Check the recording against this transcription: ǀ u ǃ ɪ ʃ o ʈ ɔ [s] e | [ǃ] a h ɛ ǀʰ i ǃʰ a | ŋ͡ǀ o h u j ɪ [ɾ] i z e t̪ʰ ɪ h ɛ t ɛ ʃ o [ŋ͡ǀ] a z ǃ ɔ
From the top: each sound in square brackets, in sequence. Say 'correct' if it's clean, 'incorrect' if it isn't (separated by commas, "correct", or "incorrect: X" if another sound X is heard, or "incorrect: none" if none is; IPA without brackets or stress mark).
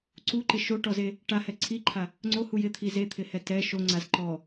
incorrect: z, incorrect: ʈ, incorrect: t̪ʰ, correct